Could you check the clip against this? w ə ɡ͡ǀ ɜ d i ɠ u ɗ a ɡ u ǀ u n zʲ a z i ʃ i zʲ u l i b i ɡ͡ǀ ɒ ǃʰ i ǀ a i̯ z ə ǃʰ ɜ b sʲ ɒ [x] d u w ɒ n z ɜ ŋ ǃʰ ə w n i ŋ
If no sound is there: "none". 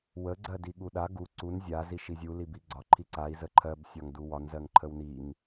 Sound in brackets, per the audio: ŋ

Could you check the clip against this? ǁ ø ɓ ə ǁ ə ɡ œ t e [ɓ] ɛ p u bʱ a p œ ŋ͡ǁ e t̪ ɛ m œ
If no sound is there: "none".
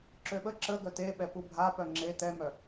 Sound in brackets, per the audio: ɓ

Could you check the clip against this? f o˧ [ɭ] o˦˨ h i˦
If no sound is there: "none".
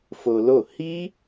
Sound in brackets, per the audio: l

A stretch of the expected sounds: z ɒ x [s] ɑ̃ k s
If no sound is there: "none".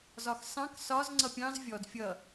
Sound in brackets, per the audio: s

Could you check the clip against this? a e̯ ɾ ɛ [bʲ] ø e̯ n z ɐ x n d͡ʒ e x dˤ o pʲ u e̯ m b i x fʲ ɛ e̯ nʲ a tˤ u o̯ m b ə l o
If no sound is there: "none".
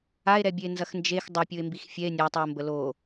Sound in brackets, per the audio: bʲ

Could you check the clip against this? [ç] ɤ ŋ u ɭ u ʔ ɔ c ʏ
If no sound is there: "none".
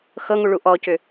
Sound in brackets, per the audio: x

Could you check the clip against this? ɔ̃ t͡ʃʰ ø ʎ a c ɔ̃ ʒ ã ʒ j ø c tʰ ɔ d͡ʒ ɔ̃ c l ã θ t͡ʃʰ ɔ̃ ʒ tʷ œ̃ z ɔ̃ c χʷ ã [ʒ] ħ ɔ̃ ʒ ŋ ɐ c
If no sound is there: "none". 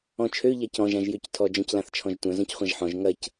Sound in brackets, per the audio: ʒ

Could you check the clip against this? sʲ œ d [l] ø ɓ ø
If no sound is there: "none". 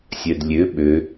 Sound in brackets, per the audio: lʲ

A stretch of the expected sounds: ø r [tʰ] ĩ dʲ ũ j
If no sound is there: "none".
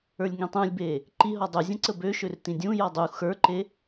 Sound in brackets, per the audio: t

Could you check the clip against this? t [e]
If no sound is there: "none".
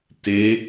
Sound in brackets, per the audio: e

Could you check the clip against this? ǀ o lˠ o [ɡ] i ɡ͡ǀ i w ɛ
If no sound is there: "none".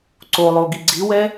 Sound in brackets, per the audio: ɡ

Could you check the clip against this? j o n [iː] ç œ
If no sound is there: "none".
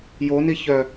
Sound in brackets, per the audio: i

